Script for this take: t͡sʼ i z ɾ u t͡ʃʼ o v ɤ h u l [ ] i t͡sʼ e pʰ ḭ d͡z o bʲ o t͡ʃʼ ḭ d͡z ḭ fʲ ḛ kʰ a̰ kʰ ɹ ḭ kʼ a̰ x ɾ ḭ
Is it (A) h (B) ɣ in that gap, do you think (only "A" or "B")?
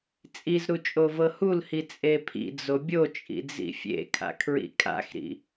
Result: A